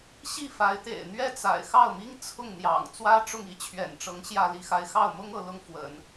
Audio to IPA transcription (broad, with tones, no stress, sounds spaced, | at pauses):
ɕ i˥˩ f a˧˥ ɪ̯ t̪ ḛ˨˩ ɪ̯ n̪ ɥ ɛ˥˩ t͡s a̰˨˩ ɪ̯ x ɑ˥˩ ʊ̯ m i˥ ŋ t͡sʰ ʊ˥˩ ŋ n̪ j ɑ̰˨˩ ŋ t͡s w ä˥ ʈ͡ʂ ʊ˥˩ ŋ i˥ t͡ɕʰ ɥ ɛ̰˨˩ n ʈ͡ʂ ɤ˧˥ ŋ ɕ j ä˥˧ l i˥˩ x a˥ ɪ̯ x ɑ˥˩ ʊ̯ m ʊ˥ ŋ ɤ˧˥ l ʊ˥ ŋ f w ə̰˨˩˦ n